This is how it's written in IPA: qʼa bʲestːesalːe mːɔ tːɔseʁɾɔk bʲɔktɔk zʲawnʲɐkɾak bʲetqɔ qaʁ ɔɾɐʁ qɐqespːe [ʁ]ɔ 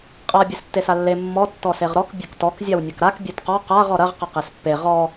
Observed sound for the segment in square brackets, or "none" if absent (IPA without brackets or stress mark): ʁ